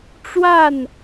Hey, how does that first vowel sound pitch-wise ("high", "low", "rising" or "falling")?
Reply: falling